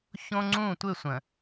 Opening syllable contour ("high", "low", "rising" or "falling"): high